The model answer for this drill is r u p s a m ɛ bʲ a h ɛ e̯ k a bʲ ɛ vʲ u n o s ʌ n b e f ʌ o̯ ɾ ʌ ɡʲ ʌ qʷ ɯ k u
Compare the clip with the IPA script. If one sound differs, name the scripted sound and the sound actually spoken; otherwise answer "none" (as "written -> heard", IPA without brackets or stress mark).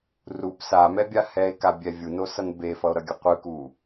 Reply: none